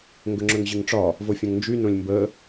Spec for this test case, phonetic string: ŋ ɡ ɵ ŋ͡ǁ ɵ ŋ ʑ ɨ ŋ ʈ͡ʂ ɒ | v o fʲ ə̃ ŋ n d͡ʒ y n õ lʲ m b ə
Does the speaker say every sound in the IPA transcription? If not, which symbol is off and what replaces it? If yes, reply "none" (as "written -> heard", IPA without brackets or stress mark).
none